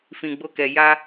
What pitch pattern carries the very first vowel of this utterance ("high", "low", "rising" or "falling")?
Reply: low